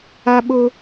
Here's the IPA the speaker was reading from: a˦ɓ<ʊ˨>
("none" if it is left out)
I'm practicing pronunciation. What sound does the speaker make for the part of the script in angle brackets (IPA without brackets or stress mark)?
ʊ˦